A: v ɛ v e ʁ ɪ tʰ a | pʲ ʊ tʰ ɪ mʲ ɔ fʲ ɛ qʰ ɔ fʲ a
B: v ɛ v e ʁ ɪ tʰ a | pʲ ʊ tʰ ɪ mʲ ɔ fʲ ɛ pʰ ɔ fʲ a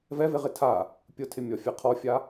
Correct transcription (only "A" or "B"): A